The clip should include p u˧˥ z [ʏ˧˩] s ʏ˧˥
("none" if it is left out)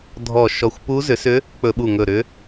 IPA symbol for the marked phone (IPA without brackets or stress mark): ʏ˩˥